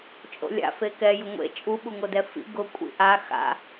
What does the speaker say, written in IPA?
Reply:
t͡ʃʼ o̰ lʲ a̰ f e k ɛ j ʊ ŋʷ ḛ t͡ʃʼ u ɓ u ŋ o d ɛ f ḭ ɡ ʊ kʷʼ ḭ ʔ a x a̰

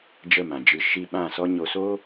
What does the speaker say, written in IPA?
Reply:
d͡ʒ ə˦˨ m ã˨ d͡ʒ ɨ˧ ʃ i˦ ɓ ã˦˨ s ɔ˦ ɲ o˧ s o˦

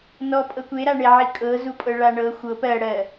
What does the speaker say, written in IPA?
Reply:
n ɔ pʼ ɤ kʷ e ɾ a ɳ e ʕ i kʼ ɤ z u pʼ ɤ ɭ a ɳ ɤ xʷ ɤ p ɜ ɽ ɜ

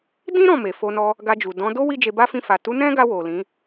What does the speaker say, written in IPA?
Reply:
d ĩ˦ ɾ ɔ̃˦˨ m e˨ f o˧ n ɔ˧ | ɡ a˧ d͡ʒ u˨ d ɔ̃˨˦ d o˦ w i˦ d͡ʒ e˧ b a˦ f ĩ˦˨ f a˨ t u˨˦ n ɛ̃˦ ɡ a˧ w o˨ l ĩ˨˦

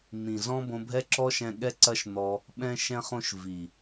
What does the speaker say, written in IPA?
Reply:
n̪ ĩ˨ z ɔ̃˦ b õ˧ bʱ ɛ˦ ǁ ɔ˦ ʃ ɛ̃˧ ɠ ɛ˦ ǀ ɐ˦ ʃ n̪ ɔ˧ | ɓ ɛ̃˦ ʃ ɛ̃˦ χ õ˦ ʃ v i˨

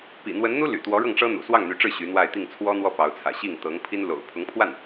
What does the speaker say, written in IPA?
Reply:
p ḭ˨˩ n̪ w ə˧˥ n n̪ u˥ l y̰˨˩ t̪ w ɔ˧˥ ɻ ɤ˥˩ ŋ ʈ͡ʂ ɤ˥ n̪ ṵ˨˩ s w ɑ˥˩ ŋ n̪ y˧˥ ʈ͡ʂ ɻ̩˥˩ ɕ y˧˥ n̪ w a˥˧ ɪ̯ t̪ i˥˩ ŋ t͡sʰ w ɔ˥ n̪ w ɔ˥˩ p ɑ˧˥ ʊ̯ t͡sʰ ä̰˨˩ ɕ i˥˩ ŋ t̪ ɤ˧˥ ŋ pʰ i˥ n l o̰˨˩ ʊ̯ pʰ ʊ˧˥ ŋ pʰ w a˥˩ n

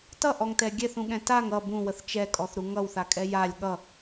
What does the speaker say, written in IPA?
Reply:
t ʌ ʔ ɔ ŋ t ɛ ɡʲ ɛ θ ũ ɠ ɛ̃ t a ŋ ʌ b ũ w ə θ t͡ʃ ɛ kʼ ɔ θ ɾ u ŋ ʌ w θ a kʼ ɛ j a lʲ ɠ ʌ

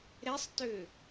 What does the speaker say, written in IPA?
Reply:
ɾ ɛ sˤ t ø

